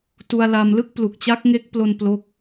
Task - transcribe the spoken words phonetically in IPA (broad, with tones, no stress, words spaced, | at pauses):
tu˧a̯la˧mlɯ˥˩k̚ plu˨˩k̚t͡ɕa˦˥k̚ŋe˦˥k̚plo˧n plo˥˩k̚